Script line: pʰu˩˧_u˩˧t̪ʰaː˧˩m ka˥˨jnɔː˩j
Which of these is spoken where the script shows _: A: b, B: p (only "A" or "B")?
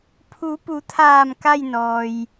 B